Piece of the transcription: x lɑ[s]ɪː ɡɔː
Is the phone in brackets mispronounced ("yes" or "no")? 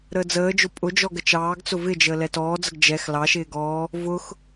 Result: yes